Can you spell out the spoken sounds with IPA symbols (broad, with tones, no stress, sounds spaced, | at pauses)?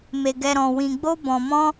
m e˧ ɡ ɛ˧ ɾ ɔ̃˧ w ĩ˧ ɡ͡b o˦ b ɔ̃˧ m ɔ̃˦